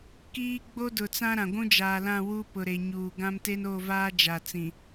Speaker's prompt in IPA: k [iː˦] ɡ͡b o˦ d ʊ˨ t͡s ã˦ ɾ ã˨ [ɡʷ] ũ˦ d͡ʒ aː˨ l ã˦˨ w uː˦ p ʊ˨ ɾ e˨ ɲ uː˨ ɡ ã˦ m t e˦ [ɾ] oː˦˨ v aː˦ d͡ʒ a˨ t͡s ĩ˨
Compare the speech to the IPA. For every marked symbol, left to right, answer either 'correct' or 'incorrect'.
correct, correct, incorrect: n

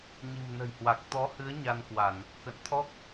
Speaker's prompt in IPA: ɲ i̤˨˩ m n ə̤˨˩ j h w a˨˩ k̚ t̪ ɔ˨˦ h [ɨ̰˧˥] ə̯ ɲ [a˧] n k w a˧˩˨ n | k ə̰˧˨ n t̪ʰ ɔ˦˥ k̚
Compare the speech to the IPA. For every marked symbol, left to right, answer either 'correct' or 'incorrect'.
incorrect: ɨ˨˦, correct

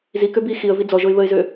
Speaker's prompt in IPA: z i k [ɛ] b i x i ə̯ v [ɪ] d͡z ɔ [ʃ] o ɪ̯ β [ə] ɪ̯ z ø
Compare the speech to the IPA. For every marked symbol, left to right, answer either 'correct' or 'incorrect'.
incorrect: ø, incorrect: i, incorrect: ʒ, correct

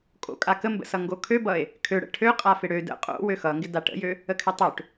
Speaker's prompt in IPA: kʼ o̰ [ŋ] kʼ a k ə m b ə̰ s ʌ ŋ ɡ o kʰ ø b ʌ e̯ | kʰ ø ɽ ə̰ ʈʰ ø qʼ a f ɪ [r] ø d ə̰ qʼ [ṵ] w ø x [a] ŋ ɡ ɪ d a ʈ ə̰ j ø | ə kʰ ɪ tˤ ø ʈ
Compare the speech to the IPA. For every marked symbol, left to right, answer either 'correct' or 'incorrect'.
incorrect: none, incorrect: ɽ, incorrect: o̰, incorrect: ʌ

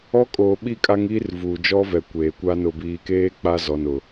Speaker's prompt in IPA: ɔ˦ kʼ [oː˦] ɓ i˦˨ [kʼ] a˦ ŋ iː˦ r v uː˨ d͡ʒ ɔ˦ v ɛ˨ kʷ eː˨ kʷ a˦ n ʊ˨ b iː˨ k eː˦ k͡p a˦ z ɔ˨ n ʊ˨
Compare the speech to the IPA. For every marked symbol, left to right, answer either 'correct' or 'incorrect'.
incorrect: oː˨, correct

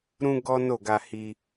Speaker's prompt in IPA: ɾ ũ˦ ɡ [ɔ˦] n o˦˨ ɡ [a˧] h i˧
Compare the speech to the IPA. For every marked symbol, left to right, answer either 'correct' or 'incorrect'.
correct, correct

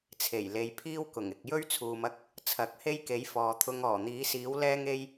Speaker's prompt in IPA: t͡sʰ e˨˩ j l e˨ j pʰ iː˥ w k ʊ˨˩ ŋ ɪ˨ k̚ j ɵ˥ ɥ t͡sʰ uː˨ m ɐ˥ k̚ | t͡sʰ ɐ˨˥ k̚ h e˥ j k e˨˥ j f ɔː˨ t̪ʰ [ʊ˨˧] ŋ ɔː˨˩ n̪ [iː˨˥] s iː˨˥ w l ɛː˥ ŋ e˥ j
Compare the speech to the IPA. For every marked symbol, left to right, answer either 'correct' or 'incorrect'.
incorrect: ʊ˧, correct

